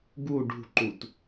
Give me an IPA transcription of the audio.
ɡ u ɖ ṳ ǃ u t

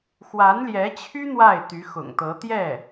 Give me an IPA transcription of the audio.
x w a˧˥ n l j ɛ˧˥ t͡ɕʰ y˥ n̪ w a˥˩ ɪ̯ t̪ y˧˥ x ʊ̰˨˩ ŋ t̪ ɤ˧˥ t̪ j ɛ˥˩

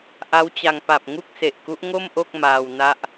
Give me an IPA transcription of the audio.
ʔ a˦˥ w t͡ɕ a˧ ŋ p a˨˩ p̚ ŋ u˥˩ k̚ s e˨˩ ʔ k u˦˥ ʔ ŋ o˥˩ m ʔ o˥˩ k̚ m aː˧ w n a˦˥ ʔ

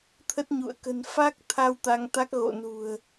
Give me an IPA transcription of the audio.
t̪ʰ ə˦˥ t̚ ɲ ṵ˧˨ ə̯ k ə̤˨˩ n f aː˦˥ k̚ t̪ʰ a˧ w t̪ a˧ ŋ t̪ a˦˥ k̚ ɣ o̰˧˨ n ṳ˨˩ ə̯

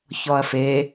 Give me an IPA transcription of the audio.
ç ɔ ɐ̯ f e

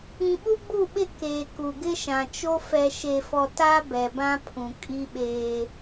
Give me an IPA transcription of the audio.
ĩ˨ ɓ u˦ ɡ͡b u˦˨ ɓ ɪ˦˨ k eː˨ k u˨ ɡ ɪ˦ ʃ ã˨ t͡ʃ o˦ f ɛ˨ ʃ e˨ f ɔ˨ t a˦ b ɛ˨ b ã˦ pʰ ũ˨ kʼ i˦ ɓ eː˦

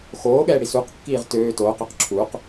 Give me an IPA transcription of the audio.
x oː ɠ ɛː ɽ i s u q kː iː ʁ t øː t oː q ø q ǁʰ u q

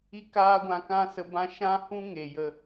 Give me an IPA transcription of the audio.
i˦ k aː˦ ɡʷ ã˧ k ã˦ s ə˧ b ã˦ ʃ ã˦ h ũ˦ ŋ e˨ j ə˧

